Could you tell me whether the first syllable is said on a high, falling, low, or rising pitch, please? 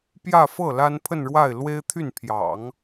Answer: falling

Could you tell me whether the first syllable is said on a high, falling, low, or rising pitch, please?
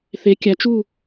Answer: rising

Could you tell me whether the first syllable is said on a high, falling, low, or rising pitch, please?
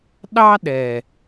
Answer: high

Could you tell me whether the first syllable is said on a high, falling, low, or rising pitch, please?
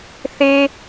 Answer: high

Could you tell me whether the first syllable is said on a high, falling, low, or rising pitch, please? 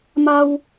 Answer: high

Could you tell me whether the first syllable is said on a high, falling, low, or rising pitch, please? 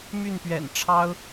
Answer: falling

